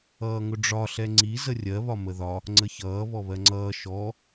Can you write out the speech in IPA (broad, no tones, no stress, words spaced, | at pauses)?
ʌːŋʊɖ͡ʐɒ ɬɛŋ͡ǀi zərʲɜ βɒməðɒ | ŋ͡ǀəçʌː βɔβɜŋ͡ǀʌː ʃɔ